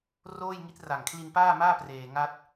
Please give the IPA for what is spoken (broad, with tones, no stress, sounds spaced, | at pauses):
r oː˥˩ j ŋ i˦˥ t̚ r a˨˩ ŋ kʰ l i˧ n p aː˥˩ m aː˥˩ p r eː˧ ŋ a˥˩ t̚